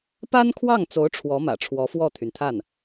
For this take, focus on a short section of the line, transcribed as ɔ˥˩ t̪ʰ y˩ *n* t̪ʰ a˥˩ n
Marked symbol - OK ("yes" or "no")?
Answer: yes